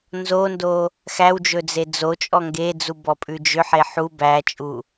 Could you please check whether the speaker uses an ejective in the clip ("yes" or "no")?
yes